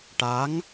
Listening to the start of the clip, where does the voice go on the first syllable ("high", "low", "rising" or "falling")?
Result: rising